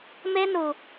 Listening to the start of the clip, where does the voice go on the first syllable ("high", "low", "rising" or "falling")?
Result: high